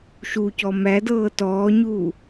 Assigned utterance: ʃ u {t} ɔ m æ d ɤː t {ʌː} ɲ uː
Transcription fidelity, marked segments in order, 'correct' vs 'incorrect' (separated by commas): incorrect, incorrect